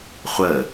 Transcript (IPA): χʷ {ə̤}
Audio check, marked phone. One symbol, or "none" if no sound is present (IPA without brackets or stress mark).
ə